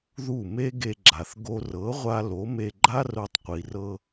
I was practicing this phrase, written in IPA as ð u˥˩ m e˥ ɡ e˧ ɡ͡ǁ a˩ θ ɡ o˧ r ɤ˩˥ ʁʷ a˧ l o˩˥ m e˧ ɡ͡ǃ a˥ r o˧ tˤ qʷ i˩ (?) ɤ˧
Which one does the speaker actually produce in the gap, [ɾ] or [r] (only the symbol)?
r